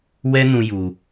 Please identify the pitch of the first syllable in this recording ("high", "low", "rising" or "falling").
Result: high